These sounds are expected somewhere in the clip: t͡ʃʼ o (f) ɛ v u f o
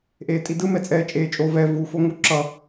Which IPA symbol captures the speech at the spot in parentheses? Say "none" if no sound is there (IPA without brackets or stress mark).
v